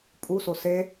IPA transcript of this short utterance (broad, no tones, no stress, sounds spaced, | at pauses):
pʼ u s o s e